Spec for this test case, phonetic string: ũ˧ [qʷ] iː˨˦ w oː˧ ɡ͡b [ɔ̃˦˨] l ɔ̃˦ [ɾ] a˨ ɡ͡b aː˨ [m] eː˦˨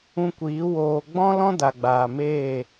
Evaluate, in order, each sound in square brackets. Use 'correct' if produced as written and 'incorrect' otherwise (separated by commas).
incorrect, incorrect, incorrect, correct